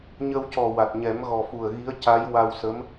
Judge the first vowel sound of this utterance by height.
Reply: mid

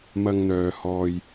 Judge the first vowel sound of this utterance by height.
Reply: low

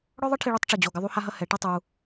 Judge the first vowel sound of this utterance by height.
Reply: mid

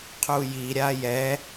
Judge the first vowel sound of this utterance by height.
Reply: high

